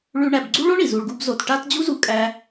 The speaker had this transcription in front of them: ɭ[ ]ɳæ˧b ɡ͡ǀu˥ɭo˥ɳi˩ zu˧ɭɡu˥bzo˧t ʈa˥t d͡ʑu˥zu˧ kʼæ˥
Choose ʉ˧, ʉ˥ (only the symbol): ʉ˥